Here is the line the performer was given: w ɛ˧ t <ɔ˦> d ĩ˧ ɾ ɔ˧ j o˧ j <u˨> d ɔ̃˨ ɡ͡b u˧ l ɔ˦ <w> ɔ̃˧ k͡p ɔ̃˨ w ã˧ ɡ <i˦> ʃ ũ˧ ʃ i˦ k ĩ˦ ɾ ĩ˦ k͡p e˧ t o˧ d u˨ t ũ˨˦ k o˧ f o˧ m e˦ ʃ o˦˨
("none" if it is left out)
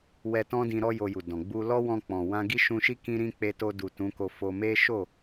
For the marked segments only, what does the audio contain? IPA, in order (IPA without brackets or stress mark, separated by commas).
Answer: ɔ̃˦, u˨, w, i˦